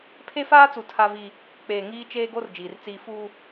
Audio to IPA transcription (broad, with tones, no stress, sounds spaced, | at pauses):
pʰ e˦ f aː˦ t͡s u˨ tʰ a˦ v i˦ | k͡p eː˨ ŋ iː˦ t͡ʃ eː˦ ɡ o˦ r d͡ʒ iː˨ r t͡s iː˦ f uː˦